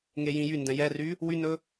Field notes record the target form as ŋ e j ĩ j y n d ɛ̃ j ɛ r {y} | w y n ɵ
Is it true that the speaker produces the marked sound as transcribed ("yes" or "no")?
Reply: yes